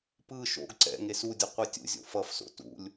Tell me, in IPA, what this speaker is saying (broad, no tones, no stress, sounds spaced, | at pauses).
p ɯ ʃ o̰ ɡ ǀ ɛ̰ ŋ e s u dʲ ʌ qʷ ɛ tʲ ṵ zʲ o̰ f ʌ f s o̰ t ṵ lʲ